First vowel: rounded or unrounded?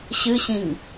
unrounded